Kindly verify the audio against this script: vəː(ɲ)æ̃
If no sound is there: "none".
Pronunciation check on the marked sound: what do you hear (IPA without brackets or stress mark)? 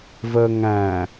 ŋ